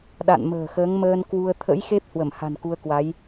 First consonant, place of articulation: alveolar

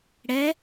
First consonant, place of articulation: retroflex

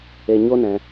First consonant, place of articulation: palatal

